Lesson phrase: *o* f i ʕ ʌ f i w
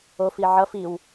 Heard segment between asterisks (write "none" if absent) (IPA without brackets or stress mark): o